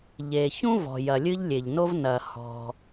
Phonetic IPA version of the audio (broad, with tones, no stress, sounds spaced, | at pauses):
ʎ e˩ ç ũ˥ v ɔ̤˩ j ɐ˩ lʲ ɨ˥ ʎ lʲ e˩ ʎ n o˥ v n ɐ˩ h ɔ̤˩